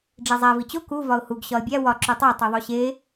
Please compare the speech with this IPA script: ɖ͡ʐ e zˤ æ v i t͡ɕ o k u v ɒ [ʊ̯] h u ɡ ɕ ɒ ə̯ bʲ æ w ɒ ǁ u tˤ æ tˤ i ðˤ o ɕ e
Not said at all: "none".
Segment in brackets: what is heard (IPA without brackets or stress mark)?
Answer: ʊ̯